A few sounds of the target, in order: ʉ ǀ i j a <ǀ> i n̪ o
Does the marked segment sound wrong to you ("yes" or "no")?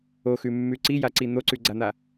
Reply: no